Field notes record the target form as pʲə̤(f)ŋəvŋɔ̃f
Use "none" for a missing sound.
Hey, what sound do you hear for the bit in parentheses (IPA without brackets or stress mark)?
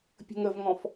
none